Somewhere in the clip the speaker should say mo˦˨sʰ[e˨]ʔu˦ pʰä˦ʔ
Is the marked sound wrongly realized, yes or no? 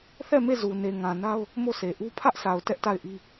no